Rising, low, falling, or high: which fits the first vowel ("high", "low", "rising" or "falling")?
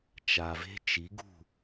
low